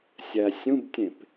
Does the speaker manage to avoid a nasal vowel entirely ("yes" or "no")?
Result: no